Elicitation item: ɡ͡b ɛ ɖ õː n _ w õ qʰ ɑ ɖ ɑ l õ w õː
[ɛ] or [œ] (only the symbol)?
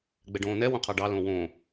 ɛ